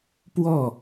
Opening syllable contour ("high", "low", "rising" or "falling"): falling